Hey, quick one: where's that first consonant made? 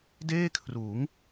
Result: tongue tip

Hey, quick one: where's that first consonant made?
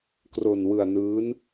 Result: velum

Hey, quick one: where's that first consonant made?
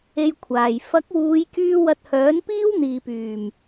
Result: palate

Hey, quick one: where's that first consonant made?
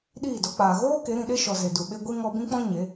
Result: tongue tip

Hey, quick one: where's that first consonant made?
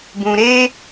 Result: lips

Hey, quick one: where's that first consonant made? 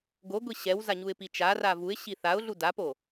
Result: velum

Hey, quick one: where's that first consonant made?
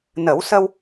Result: tongue tip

